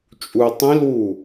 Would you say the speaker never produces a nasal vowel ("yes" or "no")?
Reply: no